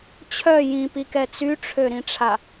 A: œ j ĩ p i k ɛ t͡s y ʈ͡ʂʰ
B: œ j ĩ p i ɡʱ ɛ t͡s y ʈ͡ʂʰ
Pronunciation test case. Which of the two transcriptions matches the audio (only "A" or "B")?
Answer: A